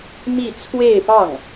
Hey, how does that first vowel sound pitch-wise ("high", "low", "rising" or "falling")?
falling